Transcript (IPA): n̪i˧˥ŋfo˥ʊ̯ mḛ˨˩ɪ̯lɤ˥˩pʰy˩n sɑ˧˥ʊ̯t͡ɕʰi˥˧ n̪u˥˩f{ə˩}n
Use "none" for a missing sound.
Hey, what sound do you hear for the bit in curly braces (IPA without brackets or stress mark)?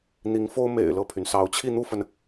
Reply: ə˩